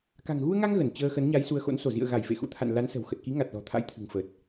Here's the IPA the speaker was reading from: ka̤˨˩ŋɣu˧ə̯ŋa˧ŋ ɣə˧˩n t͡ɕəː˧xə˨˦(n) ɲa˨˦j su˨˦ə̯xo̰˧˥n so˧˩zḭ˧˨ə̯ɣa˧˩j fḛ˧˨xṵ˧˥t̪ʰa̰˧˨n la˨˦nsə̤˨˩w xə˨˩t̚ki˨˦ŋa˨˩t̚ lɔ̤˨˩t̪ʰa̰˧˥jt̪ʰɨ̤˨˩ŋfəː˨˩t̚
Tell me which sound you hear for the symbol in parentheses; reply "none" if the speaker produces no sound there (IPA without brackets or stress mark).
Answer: n